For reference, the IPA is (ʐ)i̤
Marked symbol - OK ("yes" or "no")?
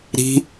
no